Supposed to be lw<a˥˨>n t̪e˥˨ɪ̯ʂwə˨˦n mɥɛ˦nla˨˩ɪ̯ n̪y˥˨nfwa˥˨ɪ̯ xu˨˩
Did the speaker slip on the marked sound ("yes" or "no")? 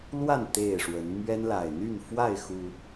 no